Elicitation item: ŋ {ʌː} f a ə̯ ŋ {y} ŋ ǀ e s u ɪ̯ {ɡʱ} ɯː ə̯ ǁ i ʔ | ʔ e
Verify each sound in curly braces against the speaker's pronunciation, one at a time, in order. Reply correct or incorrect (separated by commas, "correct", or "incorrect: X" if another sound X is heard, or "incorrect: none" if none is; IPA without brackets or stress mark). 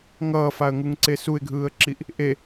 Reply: correct, incorrect: u, correct